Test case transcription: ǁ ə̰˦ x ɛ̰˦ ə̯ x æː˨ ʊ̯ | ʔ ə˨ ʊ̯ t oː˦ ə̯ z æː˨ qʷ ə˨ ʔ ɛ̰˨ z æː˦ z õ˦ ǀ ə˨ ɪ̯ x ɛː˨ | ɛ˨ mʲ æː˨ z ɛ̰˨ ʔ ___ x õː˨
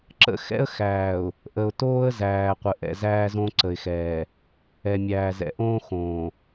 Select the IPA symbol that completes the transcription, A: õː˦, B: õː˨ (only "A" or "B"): A